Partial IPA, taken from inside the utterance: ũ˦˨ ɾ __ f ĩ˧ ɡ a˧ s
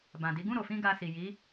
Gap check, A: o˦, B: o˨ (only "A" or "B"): B